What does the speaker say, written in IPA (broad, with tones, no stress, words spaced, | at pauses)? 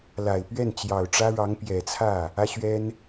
la˨˩ɪ̯ pɥɛ˥˩nt͡ɕjɑ˨˩ʊ̯ʈ͡ʂä˥ɻɑ˧˥ŋ pjɛ˨˩t͡sʰä˥˩ | ä˥ɕɥɛ˥n